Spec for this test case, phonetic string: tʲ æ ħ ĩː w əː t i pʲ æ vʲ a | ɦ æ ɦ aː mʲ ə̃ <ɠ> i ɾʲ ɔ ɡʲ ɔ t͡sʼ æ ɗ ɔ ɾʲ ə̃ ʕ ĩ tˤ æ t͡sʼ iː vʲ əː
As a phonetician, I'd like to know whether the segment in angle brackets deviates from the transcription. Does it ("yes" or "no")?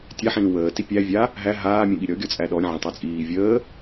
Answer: no